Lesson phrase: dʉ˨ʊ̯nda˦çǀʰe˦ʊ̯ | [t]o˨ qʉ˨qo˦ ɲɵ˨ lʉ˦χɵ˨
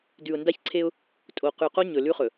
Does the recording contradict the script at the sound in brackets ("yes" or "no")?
yes